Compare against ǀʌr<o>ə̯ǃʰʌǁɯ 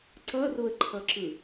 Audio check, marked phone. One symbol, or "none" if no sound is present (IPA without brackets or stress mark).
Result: o